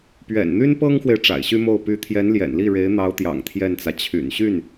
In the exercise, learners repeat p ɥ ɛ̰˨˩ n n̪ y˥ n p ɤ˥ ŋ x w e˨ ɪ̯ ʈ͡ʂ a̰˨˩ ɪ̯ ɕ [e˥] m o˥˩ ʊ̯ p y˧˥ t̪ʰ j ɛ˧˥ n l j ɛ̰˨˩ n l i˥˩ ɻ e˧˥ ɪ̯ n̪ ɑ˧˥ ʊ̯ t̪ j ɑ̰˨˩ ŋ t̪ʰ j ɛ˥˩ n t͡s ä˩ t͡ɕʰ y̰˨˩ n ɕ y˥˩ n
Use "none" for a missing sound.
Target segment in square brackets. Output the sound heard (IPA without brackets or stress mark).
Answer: y˥